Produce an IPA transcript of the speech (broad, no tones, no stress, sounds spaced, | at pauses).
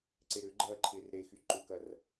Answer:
ǀ e ɾ ʏ ɡ͡ǃ ɐː ǃʰ ɪː r ɾ e x y ǃ ʏ k ɐ r